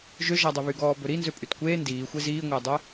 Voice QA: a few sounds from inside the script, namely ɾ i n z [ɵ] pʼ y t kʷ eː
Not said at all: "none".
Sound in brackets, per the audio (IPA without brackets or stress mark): ø